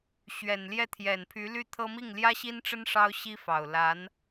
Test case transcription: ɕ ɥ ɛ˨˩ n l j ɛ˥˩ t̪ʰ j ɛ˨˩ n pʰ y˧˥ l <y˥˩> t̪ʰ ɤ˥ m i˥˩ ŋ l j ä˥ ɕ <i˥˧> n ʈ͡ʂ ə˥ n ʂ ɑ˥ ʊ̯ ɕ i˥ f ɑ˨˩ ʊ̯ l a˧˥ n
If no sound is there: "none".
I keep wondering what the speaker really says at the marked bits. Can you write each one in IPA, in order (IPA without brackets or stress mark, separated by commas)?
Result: y˥˩, i˥